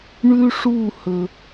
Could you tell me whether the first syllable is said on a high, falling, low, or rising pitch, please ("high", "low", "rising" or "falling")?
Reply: high